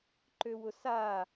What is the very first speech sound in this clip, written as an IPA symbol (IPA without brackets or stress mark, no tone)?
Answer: ǃ